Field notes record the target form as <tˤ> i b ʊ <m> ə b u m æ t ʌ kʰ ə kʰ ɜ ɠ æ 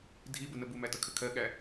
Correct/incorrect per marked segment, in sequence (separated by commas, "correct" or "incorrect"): incorrect, incorrect